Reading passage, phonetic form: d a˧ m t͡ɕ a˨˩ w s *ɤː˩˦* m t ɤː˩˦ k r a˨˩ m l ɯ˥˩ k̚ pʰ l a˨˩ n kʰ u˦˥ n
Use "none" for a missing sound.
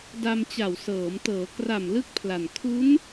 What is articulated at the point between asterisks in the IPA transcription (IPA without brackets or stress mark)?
ɤː˩˦